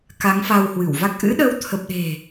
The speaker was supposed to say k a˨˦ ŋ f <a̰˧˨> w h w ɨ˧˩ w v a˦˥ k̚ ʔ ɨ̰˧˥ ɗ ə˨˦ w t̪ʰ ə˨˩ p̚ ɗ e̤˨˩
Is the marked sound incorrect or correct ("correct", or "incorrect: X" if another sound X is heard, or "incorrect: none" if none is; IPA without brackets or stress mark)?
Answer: incorrect: a˧